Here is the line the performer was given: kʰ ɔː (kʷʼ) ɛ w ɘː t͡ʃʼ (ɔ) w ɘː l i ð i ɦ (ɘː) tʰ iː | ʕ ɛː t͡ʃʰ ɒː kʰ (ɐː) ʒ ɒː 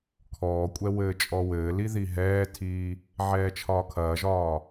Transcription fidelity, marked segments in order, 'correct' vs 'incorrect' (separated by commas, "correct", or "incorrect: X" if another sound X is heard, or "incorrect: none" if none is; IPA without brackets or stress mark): correct, correct, incorrect: ɛː, correct